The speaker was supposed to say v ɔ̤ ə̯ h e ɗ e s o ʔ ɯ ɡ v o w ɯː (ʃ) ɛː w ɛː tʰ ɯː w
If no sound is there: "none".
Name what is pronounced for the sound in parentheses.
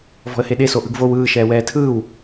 ʃ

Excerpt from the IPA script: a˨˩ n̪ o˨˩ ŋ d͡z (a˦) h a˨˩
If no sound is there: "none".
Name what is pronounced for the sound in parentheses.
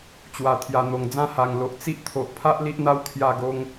ã˦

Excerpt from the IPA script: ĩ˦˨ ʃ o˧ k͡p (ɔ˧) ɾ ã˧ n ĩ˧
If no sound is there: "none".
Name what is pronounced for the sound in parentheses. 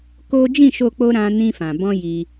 o˧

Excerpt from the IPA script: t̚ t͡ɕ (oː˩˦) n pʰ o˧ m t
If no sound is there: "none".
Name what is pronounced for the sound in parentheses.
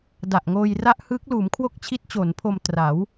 oː˩˦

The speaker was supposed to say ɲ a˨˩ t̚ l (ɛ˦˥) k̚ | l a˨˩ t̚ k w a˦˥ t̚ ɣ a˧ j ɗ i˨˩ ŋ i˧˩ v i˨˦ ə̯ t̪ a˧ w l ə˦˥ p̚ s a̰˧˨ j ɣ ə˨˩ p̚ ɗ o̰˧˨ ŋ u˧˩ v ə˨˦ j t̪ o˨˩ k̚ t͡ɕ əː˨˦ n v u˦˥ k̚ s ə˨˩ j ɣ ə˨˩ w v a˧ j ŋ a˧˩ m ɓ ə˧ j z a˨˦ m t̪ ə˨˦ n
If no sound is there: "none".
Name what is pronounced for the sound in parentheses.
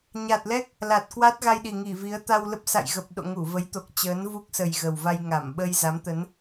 ɛ˦˥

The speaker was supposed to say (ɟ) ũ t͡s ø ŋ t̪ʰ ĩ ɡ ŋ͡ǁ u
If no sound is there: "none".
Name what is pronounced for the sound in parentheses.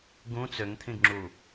ɡ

